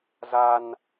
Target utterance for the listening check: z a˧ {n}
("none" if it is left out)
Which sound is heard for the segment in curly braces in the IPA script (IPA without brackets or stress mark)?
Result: n